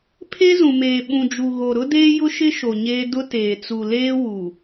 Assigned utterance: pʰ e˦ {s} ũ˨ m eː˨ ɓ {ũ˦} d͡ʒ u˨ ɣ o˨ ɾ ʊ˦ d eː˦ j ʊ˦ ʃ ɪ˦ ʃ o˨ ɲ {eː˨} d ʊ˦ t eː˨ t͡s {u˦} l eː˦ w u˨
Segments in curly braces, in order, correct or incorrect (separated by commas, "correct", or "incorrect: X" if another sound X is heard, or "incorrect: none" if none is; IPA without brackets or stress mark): incorrect: z, incorrect: ũ˨, incorrect: eː˦, incorrect: u˨